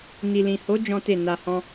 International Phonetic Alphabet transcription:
n i˨ l ĩ˨ h o˨˦ d͡ʒ ɔ̃˦ t e˦˨ n a˧ h ɔ̃˦

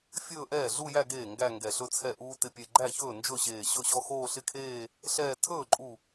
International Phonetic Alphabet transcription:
fʲ ɵː˥˧ ʔ ɛː˥˩ ɮ u˥˧ j æ˥˧ ɡ eː˥˩ ŋ ɡ æ˥˧ ŋ ɡ ɛ˧˩ ɬ ɵ˥˧ t͡sʰ ɛ˧˩ ʔ uː˧ t ɪ˧˩ pʲ e˧˩ ɡ͡ǃ æ˥˩ ç ɵː˥˩ n d͡ʒ ɵ˥˩ ɕ eː˧˩ ɕ ɵ˥˩ ɕ ɔ˥˧ x oː˥˧ ɬ ɪ˥˧ kʰ eː˥˧ | ɬ ɛː˥˧ tʰ ɵː˥˩ ǃʼ u˧˩

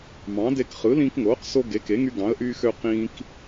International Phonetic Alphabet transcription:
m ɑ̃˩˥ d e˧ k χ ɯ˩˥ l ĩː˧ k ŋ oː˩˥ q s o˧ ɡ e˩˥ k e˩˥ ŋ y˧ ɡ ɑ̃˩˥ ə̯ ʔ yː˧ x ø˧ q ĩː˧ k

